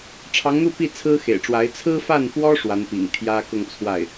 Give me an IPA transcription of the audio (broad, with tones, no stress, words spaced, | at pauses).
ʈ͡ʂʰɑ˧˥ŋn̪u˥˧pi˥˩ t͡sʰɹ̩˥xḛ˨˩ɪ̯ʈ͡ʂwa˧˥ɪ̯ t͡sʰɹ̩˥fa˥˩nfwɔ˥ ʂwa˧˥npḭ˨˩ŋ t̪ʰjä˥ kʊ˥˧ŋt͡sʰwa˥˩ɪ̯